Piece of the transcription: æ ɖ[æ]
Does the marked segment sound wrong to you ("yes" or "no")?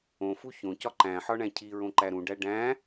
yes